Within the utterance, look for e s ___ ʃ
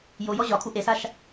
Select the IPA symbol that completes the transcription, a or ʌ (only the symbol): a